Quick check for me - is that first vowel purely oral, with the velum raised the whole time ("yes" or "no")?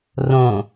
no